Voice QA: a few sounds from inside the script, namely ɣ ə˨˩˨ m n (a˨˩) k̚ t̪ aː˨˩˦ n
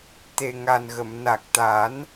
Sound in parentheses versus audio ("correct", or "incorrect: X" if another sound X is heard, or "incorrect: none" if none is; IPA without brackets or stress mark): correct